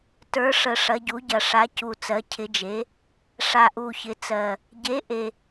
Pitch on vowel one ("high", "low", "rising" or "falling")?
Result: rising